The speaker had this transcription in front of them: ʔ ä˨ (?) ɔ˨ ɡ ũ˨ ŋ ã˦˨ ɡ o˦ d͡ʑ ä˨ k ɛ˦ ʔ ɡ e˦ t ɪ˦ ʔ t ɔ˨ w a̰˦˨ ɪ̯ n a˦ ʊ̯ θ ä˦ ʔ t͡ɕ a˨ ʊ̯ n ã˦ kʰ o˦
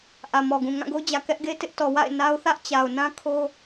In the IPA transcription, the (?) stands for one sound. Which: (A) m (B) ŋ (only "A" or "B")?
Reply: A